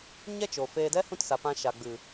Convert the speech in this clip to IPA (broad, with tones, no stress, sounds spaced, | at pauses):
ɲ ɛ˦ t͡ʃ o˨ f eː˧ d ɛ˦ h ũ˦ t s a˨ p ã˧ ʃ a˨ ɡ͡b ɨ˨